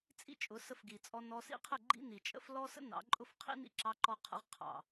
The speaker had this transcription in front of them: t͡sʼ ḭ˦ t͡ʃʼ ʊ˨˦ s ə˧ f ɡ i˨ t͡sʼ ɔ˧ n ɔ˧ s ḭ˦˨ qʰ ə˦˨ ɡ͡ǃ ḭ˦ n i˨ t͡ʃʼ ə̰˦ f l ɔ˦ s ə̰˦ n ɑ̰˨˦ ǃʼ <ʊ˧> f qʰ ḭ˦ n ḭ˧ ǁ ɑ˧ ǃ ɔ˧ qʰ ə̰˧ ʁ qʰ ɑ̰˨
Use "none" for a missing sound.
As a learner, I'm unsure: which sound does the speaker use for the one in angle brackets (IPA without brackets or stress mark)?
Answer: ʊ˦